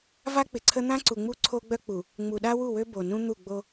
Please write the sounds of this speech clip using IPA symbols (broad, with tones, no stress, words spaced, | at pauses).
va˦k͡pɪ˨ǀʰə˦ n̪ã˦ǀu˨ŋ͡mu˦ ǀʰo˦ɡ͡bœ˦k͡pu˨ | ŋ͡mu˨ɗa˦wu˦˨wø˦ bo˨nũ˦ n̪u˦˨ɡ͡bo˦